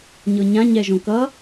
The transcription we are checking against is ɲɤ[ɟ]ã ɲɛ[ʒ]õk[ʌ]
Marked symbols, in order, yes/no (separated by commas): no, yes, yes